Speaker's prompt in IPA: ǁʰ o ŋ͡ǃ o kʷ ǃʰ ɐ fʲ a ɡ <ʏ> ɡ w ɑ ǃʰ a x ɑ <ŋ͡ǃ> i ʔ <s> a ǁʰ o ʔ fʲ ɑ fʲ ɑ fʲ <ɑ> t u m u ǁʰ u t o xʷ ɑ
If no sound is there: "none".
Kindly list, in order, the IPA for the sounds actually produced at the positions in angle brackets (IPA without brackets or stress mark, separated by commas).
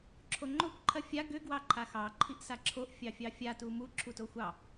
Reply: ʏ, ǃʰ, s, a